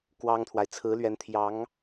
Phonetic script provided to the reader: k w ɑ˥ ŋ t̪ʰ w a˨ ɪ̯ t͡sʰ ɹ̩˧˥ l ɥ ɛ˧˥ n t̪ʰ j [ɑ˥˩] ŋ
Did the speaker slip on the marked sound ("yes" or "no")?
yes